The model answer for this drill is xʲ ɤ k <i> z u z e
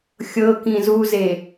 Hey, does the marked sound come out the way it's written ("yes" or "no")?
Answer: no